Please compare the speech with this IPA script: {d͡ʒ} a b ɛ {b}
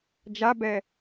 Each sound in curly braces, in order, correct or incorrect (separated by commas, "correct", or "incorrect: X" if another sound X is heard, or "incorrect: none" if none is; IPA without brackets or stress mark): correct, incorrect: none